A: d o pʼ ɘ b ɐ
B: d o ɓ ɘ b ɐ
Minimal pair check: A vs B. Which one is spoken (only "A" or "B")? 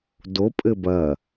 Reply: A